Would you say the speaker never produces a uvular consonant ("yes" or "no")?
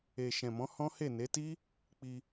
yes